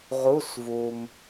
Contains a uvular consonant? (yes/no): yes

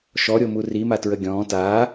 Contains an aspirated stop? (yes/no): no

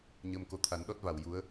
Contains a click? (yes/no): no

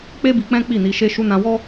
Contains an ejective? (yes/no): no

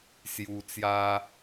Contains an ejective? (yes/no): no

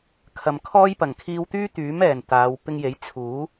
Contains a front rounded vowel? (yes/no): yes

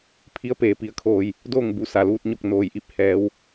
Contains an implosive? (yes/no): no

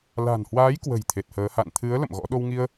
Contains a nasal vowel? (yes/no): no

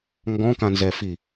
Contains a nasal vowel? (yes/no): yes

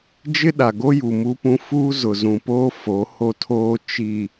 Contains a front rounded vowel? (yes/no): no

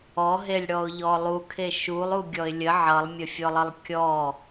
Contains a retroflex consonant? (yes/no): yes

